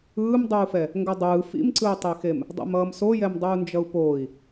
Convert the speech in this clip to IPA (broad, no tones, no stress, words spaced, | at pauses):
ɯːmdˤuːfɛ | ŋɡʌdˤɯː fḭmǀɯu̯tˤexem | dˤa̰mʌːmsojɛm dˤuːnd͡ʒʌu̯poːi̯